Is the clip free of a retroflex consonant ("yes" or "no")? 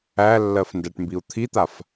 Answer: no